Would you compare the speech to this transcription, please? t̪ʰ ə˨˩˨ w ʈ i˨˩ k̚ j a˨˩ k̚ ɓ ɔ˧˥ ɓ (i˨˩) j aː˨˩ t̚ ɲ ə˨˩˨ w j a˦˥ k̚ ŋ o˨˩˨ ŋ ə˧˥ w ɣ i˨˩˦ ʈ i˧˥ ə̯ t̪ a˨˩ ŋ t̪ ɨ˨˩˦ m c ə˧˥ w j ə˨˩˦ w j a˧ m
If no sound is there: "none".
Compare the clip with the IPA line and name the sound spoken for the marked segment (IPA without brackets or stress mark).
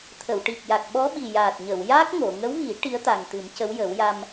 i˨˩